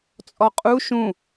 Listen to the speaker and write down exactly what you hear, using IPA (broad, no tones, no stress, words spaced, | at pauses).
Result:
t͡sʼɔqʼu ʃũ